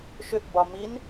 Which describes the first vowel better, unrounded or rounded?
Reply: rounded